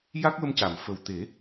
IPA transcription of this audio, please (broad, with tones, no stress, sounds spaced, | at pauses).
j a˦˥ k̚ w ə˧ m c a˨˩˨ m f ə˨˩ w t̪ e˨˩˦